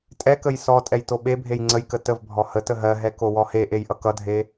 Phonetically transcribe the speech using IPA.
tʼ ɛ k ə j s ɔ tʼ ɛ j t o ɓ e bʱ e j ŋ͡ǀ ə j k ə t ə v bʱ ɔ h ə t ə ɦ ɜ ɦ ɛ k o w ɔ h e ʔ e j ʔ ʌ k ʌ dʱ e

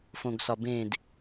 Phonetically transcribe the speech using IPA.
f õ ɡ s ɒ b ẽ d

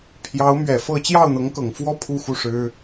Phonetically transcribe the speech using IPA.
pʰ j ɑ˧˥ ʊ̯ m ɥ ɛ˨˩ f ɤ˥˧ t͡ɕ j ɑ˥˩ ʊ̯ n̪ ɤ˧˥ ŋ k ɤ˨˩ ŋ f w ɔ˥ pʰ u˥˧ x u˥˩ ʂ ɻ̩˥

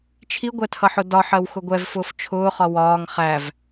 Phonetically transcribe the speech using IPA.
t͡ʃʰ i ɡʷ ɛ tʰ ʌ ħ ʊ d ɒ ħ ɜ w x ʊ ɡʷ ɛ v f ʊː f t͡ʃʰ ʊː χ ɒ w ɒː ŋ χ æ v

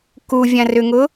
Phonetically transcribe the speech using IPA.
k u vʲ ã r ʏ ŋ ʊ

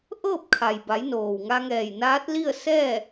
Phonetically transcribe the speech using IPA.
ʔ ɤː˥˨ p̚ kʰ a˩ j b a˩˧ j n oː˩ w ŋ a˧ ŋ ɛː˧˩ j n aː˧˥ t̚ l i˥˨ ə̯ s ɛː˥˨

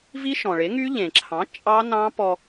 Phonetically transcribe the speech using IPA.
v i˦˥ ʃ ɔ̃˩ ɭ e˩˥ ŋ y˦˥ ʎ ẽ˩ ǁʰ ɑ̃˩˥ t͡ʃʼ ɑ˦˥ n ɑ̃˦˥ p ɔ˧

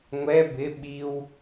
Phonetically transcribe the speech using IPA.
ŋʷ ɛ b ɪ ɓ i w

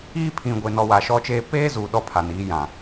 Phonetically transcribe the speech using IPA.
iː˦ pʰ ĩ˨ ɡʷ e˨ n ɔ˨ w a˨ ʃ ɔ˦ t͡ʃ eː˦ p eː˦ z uː˨ ɗ ɔ˦ pʰ a˨ n iː˨˦ j ã˨

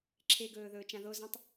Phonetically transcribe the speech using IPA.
ǁʰ e ɡ ɵː ð ɵː t͡ʃ ã ð o z ɐ̃ tˤ

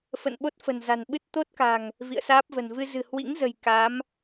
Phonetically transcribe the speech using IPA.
f ə̰˧˨ n ɓ o˦˥ t̚ f ə̤˨˩ n z a̤˨˩ n ɓ ɨ˦˥ t̚ t̪ o˦˥ t̚ k a̤˨˩ ŋ | v ḭ˧˨ ə̯ s aː˦˥ p̚ v ə̤˨˩ n v ɨ˧ z ɨ̤˨˩ h w ḭ˧˥ ŋ z ə̤˨˩ j k a˨˦ m

